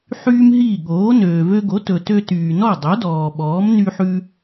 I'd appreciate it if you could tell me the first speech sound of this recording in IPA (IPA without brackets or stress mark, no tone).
ħ